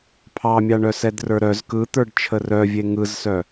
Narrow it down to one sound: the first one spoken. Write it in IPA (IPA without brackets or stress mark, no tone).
pʰ